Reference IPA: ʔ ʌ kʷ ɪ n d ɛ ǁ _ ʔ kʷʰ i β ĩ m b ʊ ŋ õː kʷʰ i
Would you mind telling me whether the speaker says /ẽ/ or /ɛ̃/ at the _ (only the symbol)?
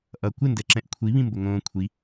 ɛ̃